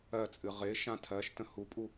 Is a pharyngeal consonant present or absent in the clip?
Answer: absent